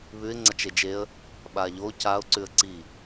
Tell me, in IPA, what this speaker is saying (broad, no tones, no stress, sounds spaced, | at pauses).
β ʉ ɪ̯ ŋ͡ǀ ɐ t͡ʃ e d͡ʒ e ə̯ | ɓ a ʎ o c a ʊ̯ ǀ ʉ ə̯ ǀ i